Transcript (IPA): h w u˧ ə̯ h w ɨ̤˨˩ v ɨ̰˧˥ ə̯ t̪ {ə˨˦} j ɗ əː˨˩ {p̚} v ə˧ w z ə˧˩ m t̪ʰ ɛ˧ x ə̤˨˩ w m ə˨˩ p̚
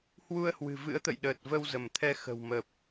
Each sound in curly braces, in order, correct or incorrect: incorrect: ə̰˧˨, incorrect: t̚

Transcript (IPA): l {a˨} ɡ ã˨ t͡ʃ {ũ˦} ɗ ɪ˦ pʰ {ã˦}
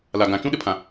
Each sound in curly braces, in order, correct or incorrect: correct, correct, incorrect: ã˨

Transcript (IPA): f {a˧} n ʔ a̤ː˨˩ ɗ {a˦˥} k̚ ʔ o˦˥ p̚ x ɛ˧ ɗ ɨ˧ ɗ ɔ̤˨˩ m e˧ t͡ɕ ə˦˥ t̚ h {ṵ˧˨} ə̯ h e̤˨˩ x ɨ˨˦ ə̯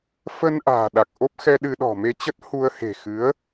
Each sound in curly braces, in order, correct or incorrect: incorrect: ə˧, incorrect: a˨˩, incorrect: u˧

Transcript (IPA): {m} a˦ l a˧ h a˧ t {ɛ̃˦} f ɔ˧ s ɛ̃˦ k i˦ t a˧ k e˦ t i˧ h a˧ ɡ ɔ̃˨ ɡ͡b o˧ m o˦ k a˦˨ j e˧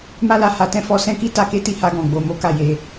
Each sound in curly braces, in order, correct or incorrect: correct, correct

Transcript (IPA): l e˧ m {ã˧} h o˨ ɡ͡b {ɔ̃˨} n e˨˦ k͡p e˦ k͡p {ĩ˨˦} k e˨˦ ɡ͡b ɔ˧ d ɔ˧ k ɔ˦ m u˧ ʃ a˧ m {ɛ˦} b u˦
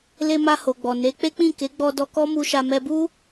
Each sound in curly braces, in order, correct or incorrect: incorrect: a˧, incorrect: ɔ˨, incorrect: ĩ˦˨, incorrect: ɛ˧

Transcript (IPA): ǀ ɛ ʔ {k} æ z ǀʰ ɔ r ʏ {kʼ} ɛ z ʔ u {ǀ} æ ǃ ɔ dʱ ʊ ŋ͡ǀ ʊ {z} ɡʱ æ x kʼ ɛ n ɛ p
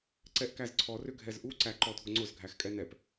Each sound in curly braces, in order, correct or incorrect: correct, incorrect: ɡʱ, correct, correct

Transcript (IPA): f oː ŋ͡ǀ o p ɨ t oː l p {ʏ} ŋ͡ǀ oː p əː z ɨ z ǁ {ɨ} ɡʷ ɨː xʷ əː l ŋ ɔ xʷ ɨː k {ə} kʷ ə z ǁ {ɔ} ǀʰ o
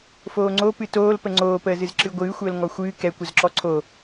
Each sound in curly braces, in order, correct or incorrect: incorrect: ə, correct, incorrect: ɛ, correct

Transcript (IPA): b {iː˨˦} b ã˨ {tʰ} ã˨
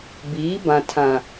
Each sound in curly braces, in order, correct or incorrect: correct, correct

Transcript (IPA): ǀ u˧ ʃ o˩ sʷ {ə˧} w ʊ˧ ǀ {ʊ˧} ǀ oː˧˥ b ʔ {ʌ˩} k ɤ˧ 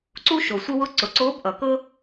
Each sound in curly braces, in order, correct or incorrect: correct, incorrect: ʊ˩˧, correct

